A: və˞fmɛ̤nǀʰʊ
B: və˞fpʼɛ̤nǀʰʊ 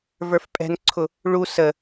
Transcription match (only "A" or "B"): B